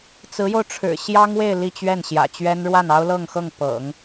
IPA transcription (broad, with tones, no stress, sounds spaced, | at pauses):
t͡s ɹ̩˧˥ j o˧ ʊ̯ ʈ͡ʂʰ ɻ̩˨˩ ɕ j ɑ˥ ŋ w e˥˧ ɪ̯ l i˥˧ t͡ɕ ɥ ɛ˥˩ n ɕ j ä̰˨˩ t͡ɕ ɥ ɛ˥ n ɻ w a˥˩ n ɑ˥ ʊ̯ l ɤ˥˧ ŋ x ɤ˥˩ ŋ p ɤ̰˨˩˦ ŋ